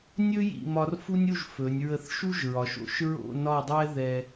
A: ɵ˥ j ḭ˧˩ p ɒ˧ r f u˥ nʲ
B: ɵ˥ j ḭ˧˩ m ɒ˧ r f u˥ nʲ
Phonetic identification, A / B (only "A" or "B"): B